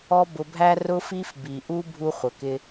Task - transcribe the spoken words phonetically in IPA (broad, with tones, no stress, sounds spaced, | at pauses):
ɔ˦ b ʊ˧ bʱ æ˦ r ʊ˦ f i˦ f b i˨ ʔ u˦ bʱ u˦ χʷ ə˨ k ɪ˦